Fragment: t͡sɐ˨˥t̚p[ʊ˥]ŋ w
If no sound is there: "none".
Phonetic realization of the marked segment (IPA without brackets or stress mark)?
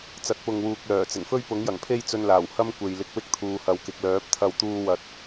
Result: ʊ˨